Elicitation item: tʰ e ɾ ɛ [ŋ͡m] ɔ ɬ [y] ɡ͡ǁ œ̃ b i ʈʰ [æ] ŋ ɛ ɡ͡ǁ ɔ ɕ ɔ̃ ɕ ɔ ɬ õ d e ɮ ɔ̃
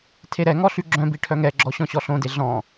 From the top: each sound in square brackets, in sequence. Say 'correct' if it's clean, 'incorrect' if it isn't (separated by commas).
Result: incorrect, correct, incorrect